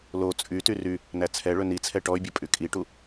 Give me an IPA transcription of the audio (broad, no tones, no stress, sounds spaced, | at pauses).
l o t͡sʼ y t y r y | n æ t͡sʰ ɛ ɭ ɵ n i t͡sʰ ɛ ʈ ɔ y̯ bʲ ɵ pʼ y kʼ i ʈ u